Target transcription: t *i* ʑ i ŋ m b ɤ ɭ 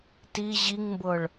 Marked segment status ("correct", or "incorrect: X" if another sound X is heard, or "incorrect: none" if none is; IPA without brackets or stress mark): correct